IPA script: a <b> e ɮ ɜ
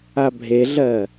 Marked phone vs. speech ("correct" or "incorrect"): incorrect